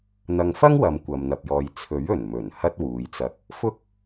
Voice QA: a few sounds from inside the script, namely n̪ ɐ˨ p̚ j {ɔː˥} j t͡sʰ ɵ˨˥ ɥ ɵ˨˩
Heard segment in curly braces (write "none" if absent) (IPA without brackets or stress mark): ɔː˨